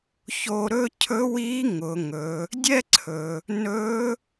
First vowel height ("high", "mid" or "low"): mid